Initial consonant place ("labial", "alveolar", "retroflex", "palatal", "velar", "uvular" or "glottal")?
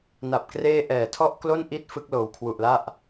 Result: alveolar